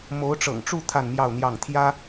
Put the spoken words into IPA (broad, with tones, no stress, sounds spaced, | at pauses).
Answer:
m o˧˥ ʊ̯ ʈ͡ʂ ɤ̰˨˩ ŋ ʈ͡ʂ u˥˧ t̪ʰ a˥˧ n m j ɑ˥˧ ʊ̯ n̪ j ɑ˥˩ ŋ t̪ʰ j ä˥